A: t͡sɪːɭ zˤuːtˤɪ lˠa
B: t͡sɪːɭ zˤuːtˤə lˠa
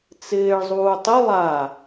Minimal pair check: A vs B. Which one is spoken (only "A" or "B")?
A